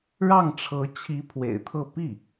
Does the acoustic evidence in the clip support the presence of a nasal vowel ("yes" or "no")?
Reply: no